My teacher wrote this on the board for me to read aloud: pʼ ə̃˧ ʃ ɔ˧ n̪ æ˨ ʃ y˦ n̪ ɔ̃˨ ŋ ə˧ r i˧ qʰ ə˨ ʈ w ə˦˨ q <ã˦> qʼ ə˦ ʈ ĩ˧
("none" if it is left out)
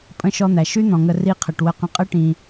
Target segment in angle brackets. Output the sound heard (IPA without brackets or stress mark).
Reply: ə̃˦